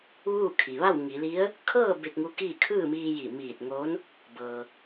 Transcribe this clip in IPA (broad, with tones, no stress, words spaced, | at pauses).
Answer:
ʋuː˥˨kʰi˩ ʋa˥˨wŋi˩˧li˧˥ə̯ | kʰɤː˥˨ be˧k̚ŋu˧˥kiː˥˨ kʰɯː˥˨miː˧ji˧˩ miː˧˩t̚ŋoː˧˥n | bɤː˩